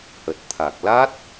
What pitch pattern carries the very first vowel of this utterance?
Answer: low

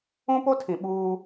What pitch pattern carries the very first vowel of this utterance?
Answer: high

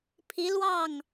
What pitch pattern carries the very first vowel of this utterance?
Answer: rising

